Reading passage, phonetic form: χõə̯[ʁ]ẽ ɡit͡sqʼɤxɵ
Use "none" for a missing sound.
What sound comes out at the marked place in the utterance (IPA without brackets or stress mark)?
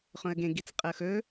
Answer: ɡ